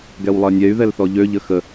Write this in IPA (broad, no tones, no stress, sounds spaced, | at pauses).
ɡ ɛ w lˠ ɜ nʲ ɛ y̯ ð ɛ l θ ɔ ʎ ø ʎ ə x ə